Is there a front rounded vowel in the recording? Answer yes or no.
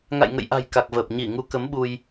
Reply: no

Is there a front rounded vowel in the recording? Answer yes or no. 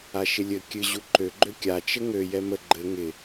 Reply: yes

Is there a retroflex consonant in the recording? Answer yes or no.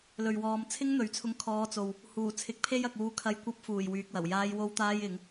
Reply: no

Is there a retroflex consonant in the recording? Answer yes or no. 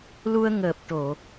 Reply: yes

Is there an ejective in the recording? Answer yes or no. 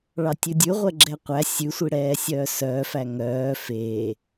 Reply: no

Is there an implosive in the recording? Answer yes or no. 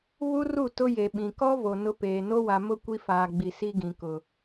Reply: yes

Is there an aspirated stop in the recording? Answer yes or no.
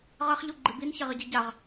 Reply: no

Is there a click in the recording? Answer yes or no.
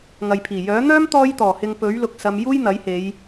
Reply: no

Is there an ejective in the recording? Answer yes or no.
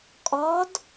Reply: yes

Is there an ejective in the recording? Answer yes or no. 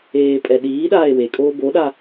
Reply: yes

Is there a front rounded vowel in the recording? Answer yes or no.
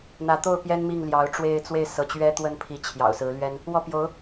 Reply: no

